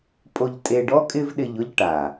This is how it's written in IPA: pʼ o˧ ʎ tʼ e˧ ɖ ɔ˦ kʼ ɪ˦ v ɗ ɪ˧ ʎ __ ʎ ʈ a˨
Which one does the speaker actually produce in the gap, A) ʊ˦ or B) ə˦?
A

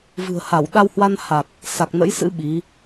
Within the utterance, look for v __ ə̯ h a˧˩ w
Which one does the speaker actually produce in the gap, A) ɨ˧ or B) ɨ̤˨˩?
B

